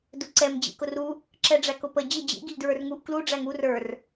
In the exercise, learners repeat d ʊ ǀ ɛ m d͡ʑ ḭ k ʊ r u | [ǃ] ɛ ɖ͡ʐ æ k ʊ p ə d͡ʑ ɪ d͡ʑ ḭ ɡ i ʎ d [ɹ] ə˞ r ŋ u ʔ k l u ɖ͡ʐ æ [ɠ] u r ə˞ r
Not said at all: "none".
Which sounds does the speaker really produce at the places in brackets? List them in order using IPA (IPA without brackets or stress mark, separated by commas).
ǁ, ɹ, ŋ